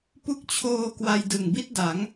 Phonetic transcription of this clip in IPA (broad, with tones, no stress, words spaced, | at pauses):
pu˦˥k̚t͡ɕʰoː˧ kwa˧jdɯ˨˩ŋbi˥˩t̚ da˩˦ŋ